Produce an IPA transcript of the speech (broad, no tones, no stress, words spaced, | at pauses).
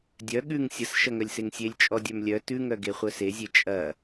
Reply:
dʲœ ɠʉŋ sʲəs ʃɐŋœlʲseŋsʲelʲ t͡ʃʼɔdʲœmlʲœ tʉŋœ ɡeχʷœsezʲe t͡ʃʼɐ